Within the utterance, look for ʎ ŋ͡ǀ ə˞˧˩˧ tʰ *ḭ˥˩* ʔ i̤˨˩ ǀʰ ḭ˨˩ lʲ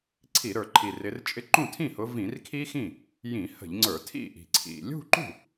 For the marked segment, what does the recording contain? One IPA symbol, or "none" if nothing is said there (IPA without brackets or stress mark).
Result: ḭ˥˩